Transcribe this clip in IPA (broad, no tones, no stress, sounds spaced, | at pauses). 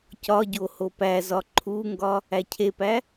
c ɒ ɟ o h o p æ z ɒ ǃʰ u ŋ ɡ ɒ | æ cʰ e p æ